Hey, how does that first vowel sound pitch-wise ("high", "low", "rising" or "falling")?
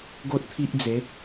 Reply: high